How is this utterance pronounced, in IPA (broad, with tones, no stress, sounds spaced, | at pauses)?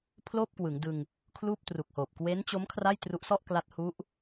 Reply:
pʰ l oː˥˩ p̚ k w ɯ˩˦ ŋ d ɯ˧ ŋ | kʰ l uː˥˩ p̚ t r u˨˩ k̚ h oː˨˩ p̚ k w e˦˥ n t͡ɕ o˦˥ m kʰ r a˥˩ j t r u˦˥ ʔ s ɔ˥˩ ʔ k l a˦˥ t̚ h u˦˥ ʔ